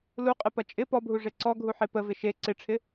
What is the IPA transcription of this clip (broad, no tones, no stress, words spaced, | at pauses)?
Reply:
luqʼɪpɐ t͡ʃʼɪ pɔbʱuʐe ǀɔɡʱuħe pəvɪ ʃe ǀɪʈ͡ʂʰɪ